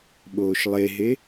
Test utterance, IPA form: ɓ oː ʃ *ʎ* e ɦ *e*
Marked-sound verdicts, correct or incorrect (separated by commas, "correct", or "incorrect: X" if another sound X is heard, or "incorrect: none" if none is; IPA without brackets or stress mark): incorrect: lˠ, correct